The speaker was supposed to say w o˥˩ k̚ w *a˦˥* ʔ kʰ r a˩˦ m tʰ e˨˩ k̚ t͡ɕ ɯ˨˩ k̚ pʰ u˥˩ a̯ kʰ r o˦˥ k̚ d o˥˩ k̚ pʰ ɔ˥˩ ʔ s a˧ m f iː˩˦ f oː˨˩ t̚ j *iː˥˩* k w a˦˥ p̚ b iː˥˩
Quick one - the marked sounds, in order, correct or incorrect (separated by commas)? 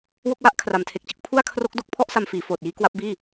incorrect, incorrect